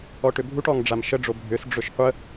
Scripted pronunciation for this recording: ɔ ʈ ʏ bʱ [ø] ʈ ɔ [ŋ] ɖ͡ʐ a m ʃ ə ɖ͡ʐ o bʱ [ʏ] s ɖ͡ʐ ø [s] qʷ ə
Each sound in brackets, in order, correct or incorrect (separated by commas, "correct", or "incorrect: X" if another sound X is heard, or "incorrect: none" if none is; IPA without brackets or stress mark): incorrect: u, correct, correct, incorrect: ʃ